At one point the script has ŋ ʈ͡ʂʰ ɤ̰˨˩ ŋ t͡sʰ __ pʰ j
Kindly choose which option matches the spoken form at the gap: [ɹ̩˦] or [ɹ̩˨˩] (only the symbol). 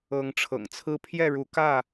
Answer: ɹ̩˦